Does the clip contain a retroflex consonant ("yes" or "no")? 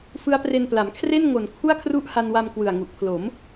no